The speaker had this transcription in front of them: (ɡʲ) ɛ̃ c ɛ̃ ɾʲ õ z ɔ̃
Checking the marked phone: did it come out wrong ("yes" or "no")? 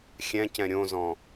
yes